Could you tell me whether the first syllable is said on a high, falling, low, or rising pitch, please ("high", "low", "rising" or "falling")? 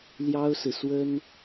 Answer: high